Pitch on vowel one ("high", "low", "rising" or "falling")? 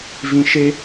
low